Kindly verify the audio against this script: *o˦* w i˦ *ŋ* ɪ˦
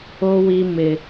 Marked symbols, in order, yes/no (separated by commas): yes, no